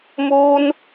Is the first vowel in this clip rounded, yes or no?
yes